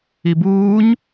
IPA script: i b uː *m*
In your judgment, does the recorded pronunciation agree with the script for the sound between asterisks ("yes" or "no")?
no